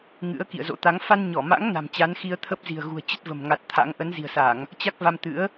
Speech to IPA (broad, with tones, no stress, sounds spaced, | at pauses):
ŋ ɨ̰˧˥ ə̯ k ḭ˧˨ ə̯ z o̰˧˥ t̪ a˨˦ ŋ f a˧ n ɲ ɔ˧˩ m a̰˧˥ ŋ n a̤˨˩ m t͡ɕ a˨˦ n x i˧ ə̯ t̪ʰ ə˦˥ p̚ z i̤˨˩ ə̯ ɣ ṳ˨˩ ə̯ t͡ɕ ə˦˥ t̚ v ə̤˨˩ m ŋ a˨˩ t̚ t̪ʰ a̰˧˥ ŋ ʔ ə˨˦ n z i̤˨˩ ə̯ s a˧˩˨ ŋ | t͡ɕ a˦˥ k̚ v a˧ m t̪ ɨ̰˧˥ ə̯